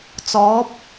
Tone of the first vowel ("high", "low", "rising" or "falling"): rising